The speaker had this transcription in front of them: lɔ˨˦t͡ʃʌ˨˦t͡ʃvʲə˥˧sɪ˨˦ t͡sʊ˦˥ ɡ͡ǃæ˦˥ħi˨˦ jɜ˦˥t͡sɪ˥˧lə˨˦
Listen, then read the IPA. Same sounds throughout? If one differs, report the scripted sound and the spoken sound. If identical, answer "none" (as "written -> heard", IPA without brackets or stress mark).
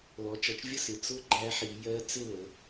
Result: none